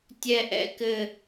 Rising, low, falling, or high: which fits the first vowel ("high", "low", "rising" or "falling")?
high